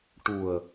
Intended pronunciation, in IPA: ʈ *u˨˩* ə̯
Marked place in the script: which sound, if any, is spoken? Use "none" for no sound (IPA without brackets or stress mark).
u˨˩